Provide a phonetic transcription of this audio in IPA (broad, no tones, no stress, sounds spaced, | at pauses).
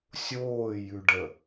sʲ oː j ʉ ɖ ə